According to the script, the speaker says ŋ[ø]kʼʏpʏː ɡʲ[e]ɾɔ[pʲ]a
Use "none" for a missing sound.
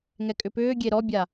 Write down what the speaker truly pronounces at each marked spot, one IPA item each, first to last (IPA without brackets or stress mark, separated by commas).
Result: ɛ, e, bʲ